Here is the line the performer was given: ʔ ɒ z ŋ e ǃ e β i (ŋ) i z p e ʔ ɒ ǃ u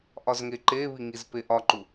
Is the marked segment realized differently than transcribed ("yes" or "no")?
no